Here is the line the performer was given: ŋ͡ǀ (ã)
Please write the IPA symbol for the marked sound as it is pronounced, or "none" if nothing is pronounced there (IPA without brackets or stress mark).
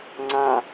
ã